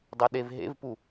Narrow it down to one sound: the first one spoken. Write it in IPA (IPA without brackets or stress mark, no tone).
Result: dˤ